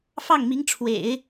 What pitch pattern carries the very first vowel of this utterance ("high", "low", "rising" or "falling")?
falling